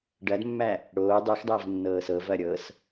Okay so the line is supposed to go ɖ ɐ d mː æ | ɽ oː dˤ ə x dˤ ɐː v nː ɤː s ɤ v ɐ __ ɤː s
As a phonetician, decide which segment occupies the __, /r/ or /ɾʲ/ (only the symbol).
ɾʲ